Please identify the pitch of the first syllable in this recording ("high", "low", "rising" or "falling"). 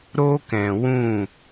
high